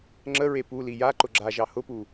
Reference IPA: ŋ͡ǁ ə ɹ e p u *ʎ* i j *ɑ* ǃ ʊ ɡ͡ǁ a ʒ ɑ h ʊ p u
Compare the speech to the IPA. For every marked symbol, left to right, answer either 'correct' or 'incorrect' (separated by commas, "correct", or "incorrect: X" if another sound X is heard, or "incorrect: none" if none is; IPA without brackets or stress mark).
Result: incorrect: l, incorrect: a